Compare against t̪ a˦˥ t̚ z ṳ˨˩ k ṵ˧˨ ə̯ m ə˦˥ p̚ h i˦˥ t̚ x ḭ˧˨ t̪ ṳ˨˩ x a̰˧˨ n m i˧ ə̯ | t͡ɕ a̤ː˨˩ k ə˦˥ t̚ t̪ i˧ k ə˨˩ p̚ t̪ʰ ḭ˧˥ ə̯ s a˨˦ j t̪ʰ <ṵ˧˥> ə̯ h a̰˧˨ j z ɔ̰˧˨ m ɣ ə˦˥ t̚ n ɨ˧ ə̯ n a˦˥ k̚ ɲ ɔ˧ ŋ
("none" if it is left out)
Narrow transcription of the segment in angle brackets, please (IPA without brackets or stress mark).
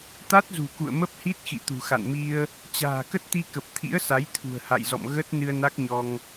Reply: ṳ˨˩